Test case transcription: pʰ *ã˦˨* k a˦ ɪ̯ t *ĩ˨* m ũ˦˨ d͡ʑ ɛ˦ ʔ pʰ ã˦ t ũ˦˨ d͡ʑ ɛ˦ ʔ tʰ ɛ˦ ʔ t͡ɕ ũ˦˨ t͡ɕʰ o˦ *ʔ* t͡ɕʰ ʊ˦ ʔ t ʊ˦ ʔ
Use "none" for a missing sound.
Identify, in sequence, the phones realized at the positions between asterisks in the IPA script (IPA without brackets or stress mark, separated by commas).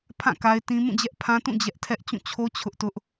ã˦˨, ĩ˦, none